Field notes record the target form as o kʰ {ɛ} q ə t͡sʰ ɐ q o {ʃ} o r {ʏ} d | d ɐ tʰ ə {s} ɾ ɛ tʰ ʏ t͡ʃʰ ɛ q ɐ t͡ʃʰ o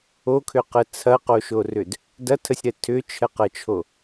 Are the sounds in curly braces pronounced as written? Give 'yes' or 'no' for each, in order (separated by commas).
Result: no, yes, yes, no